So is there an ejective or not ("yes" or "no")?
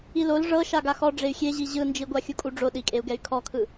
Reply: yes